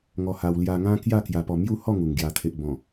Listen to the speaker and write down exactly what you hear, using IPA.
ŋ ɔ˧ h a˧ w l j a˧ ŋ ã˦ k j a˥˧ k j a˧ p ɔ˧ m j u˥˧ h ɔ˥˧ ŋ u˨˩ ŋ ɡ j a˨˩ t̪ʰ e˨ ʔ b ɔ̃˨˩

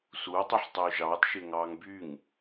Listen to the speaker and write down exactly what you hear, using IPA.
s u o̯ tˤ i ħ tˤ øː ʒ ɑː t ʃ e ŋ ɑː ŋ b y ŋ

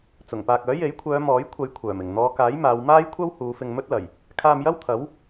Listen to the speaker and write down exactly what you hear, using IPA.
t͡s ʊ˨˩ ŋ p aː˨ k̚ œː˨˥ j e˨˥ j kʷʰ œː˨˧ m ɔː˨˥ j kʷʰ ɐ˨˧ j kʷʰ œː˨˩ m ɪ˨˩ ŋ n̪ ɔː˨˧ k aː˨˥ j m aː˨˧ w m aː˥ j kʷʰ ɐ˥ w h uː˨˧ f ɪ˧ ŋ m ɵ˥ t̚ l ɐ˨˩ j | kʰ aː˧ m j ɐ˥ w t̪ʰ ɐ˨˥ w

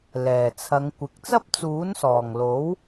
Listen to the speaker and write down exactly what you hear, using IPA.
l ɛː˨˩ t͡sʰ ɐ˨˧ ŋ kʷ ɪ˨˥ k̚ t͡s ɐ˥ p̚ t͡s uː˨˥ n s ɔː˨˩ ŋ l o˨˥ w

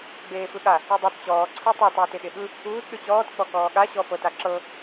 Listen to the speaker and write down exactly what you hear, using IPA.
ɡ͡b eː f ɯ ɠ a | ɯ dˤ i t t͡ɕ ɔː ǀʰ ɤ tˤ i tˤ uː t e ɠ e ɠ ɯ | uː t ɗ ɯ t͡ɕ ɔː t k͡p ɔ k ɔː ɠ a ɕ ɔ f ɤ t a ǁ ɤ

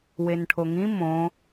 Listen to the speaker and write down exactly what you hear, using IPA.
w e n ʈʰ o ŋ ĩ m õ

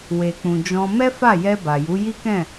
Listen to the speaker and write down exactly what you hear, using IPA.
w e˨ k͡p ũ˨ d͡ʒ ɔ̃˧ m ɛ˦ f a˦˨ j ɛ˧ b a˨ j u˨˦ j i˦ k ɛ̃˦˨

